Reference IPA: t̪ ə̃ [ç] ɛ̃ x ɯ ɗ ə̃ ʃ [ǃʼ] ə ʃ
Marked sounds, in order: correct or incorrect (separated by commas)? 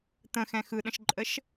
incorrect, correct